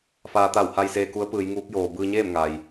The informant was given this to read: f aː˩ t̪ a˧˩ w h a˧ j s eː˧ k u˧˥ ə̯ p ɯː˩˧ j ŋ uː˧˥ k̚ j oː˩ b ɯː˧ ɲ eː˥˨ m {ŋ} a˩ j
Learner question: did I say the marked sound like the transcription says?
yes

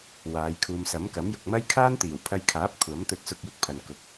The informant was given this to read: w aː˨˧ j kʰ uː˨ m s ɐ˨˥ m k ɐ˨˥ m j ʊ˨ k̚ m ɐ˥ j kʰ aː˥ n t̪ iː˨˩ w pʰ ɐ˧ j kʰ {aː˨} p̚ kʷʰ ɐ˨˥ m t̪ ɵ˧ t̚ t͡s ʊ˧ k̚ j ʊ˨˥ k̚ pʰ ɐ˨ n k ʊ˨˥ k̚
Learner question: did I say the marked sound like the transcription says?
no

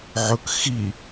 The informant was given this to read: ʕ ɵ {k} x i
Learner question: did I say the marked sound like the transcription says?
yes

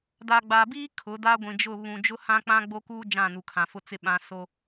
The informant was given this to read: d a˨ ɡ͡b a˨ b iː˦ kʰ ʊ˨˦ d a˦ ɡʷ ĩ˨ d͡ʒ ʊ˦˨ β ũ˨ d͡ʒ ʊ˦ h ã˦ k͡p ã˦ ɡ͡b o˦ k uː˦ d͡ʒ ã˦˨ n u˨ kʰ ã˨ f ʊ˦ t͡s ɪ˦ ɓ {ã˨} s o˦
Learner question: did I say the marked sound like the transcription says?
no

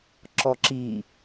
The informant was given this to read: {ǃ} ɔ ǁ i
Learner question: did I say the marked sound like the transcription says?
no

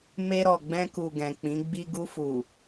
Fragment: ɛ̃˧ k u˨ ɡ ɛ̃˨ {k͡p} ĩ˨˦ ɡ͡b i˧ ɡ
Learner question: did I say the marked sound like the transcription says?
yes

